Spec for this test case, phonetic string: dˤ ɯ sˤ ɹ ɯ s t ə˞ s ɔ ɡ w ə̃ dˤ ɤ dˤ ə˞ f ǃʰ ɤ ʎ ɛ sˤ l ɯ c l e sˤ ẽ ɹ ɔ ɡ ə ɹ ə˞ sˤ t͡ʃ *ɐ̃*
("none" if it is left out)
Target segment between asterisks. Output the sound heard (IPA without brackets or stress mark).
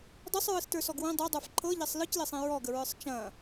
ɐ̃